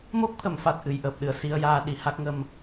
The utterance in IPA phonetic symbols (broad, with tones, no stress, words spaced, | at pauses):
mo˦˥k̚t̪ʰə˨˩˨mfa˨˩t̚ ʔɨ˨˩˨j ʔəː˨˩p̚ɗɨ˨˩˨ə̯si˧ə̯ jaː˧ɗi˨˩ha˦˥k̚ŋə˧m